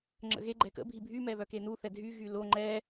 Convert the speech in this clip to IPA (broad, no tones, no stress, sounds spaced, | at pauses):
ŋ͡ǁ ə̰ ɣ e ɡ͡ǃ ɛ k ə̰ bʱ i bʱ y m ɛ β œ k e n u θ ɛ dʱ y ɣ y l o ŋ͡ǃ ɛ